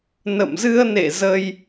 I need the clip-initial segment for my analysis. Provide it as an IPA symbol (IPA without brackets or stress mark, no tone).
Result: n